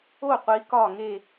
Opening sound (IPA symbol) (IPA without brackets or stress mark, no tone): o